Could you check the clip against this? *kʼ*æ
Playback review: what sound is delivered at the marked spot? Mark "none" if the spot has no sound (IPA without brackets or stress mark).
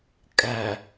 kʼ